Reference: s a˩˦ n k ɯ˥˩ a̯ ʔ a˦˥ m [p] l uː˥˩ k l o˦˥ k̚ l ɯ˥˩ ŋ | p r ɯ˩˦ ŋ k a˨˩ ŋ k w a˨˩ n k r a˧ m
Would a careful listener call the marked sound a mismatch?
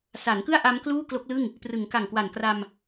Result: yes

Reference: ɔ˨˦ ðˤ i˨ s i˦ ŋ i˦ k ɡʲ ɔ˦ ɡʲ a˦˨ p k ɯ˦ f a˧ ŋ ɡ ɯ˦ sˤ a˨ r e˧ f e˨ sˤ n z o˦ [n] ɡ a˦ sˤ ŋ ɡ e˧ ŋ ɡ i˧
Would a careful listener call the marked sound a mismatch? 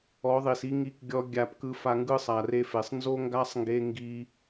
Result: yes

